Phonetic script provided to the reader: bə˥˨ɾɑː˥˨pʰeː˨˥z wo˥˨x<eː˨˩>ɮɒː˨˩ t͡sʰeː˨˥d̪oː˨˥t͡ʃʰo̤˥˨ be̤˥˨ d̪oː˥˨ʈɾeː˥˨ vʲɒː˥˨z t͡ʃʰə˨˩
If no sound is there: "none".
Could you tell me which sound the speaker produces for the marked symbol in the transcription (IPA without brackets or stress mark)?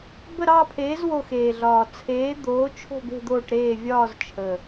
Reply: eː˨˩